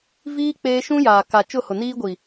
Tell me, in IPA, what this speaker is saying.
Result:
v iː˦ k͡p eː˦ ʃ ũ˦ j aː˨ k a˨ t͡ʃ ʊ˦˨ h ʊ˨ n iː˦ ɡʷ i˨

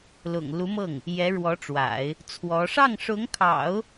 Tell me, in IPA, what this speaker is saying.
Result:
l ʊ̰˨˩ ŋ l u˧˥ m ɤ˥˩ ŋ | j ɛ˧˥ ɻ w ɔ˧˥ ʈ͡ʂ w a̰˨˩˦ ɪ̯ | t͡sʰ w ɔ˧˥ ʂ ɑ˥˩ ŋ ʂ ʊ˧˥ ŋ kʰ ɑ̰˨˩˦ ʊ̯

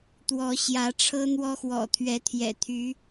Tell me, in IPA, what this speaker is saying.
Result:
t̪ w ɔ˨˦ ɕ j ä˨˦ ʈ͡ʂʰ ɤ˦ n̪ w ɔ˦ x w ɔ̰˨˩ t̪ʰ ɥ ɛ˨˦ t̪ʰ j ɛ̰˨˩ t̪ʰ y˨˦

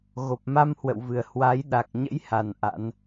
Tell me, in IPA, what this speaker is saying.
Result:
ɣ o˨˩ p̚ m a˧ m h w ə̰˧˨ w v ɨ˨˩ ə̯ h w a˨˦ j ɗ a˨˩ k̚ ɲ ə̰˧˥ j h a˨˩ n ʔ a̰˧˥ n

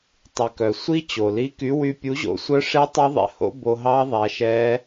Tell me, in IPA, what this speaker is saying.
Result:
tˤ y˩ k œ˩ sʷ i˦˥ t͡ɕ o˩ l i˨˥ k y˨˥ w y˧ pʲ u˨˥ ʑ o̰˨˥ sʷ œ˦˥ ʂ e˦˥ tˤ y˦˥ ðˤ ɛ̰˧ h o̰˦˥ b o˧ ɦ ɑ˦˥ ðˤ æ˧ ʃ ɛ˦˥

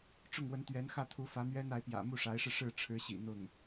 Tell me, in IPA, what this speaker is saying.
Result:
ʈ͡ʂ ʊ˥˩ ŋ w ə˧˥ n t̪ ɥ ɛ˧˥ n x ä˥˩ t̪ʰ u˧˥ f ä˧˥ n̪ ɥ ɛ˥ n a˧˥ ɪ̯ p j ä̰˨˩ m u˥˩ ʂ a˧˥ ɪ̯ ʂ ɻ̩˧ ʂ ɻ̩˥˩ ʈ͡ʂʰ ɻ̩˧˥ ɕ ḭ˨˩ n̪ ʊ˥˩ ŋ

